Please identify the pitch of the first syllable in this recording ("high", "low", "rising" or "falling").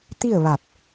falling